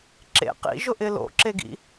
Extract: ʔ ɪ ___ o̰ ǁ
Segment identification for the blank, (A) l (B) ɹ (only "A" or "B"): A